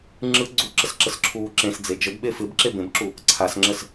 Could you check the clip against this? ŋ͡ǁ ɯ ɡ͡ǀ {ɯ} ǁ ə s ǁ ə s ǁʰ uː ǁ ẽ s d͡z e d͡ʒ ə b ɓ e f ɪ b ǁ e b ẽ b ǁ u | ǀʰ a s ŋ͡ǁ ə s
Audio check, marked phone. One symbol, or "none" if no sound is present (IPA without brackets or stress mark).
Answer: u